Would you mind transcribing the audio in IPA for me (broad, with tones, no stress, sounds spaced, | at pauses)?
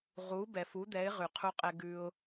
ʁ u˩˥ b ɛ˩ f u˩˥ d̪ ɛ˩˥ ɪ̯ ʁ ʉ˩ qʰ u˧ qʼ ɛ˧ ɡ ʉ˧ ʊ̯